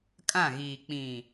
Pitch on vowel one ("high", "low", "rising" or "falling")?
falling